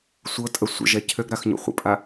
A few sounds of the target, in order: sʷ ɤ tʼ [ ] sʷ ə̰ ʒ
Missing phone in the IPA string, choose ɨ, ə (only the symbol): ə